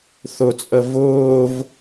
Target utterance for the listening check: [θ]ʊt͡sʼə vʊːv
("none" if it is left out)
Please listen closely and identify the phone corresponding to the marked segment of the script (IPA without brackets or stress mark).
θ